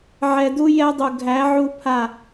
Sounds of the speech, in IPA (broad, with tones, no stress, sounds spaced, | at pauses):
ʕ ɛ˨ d u˦ j ɛ˦ dˤ u˨ ɡʱ æ˨˦ ʕ u˦ pʰ a˦˨